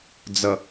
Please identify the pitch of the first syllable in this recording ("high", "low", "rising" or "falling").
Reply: low